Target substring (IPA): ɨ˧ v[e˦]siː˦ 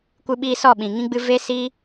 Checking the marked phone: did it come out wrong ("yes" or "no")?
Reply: no